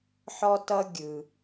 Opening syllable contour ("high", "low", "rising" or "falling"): high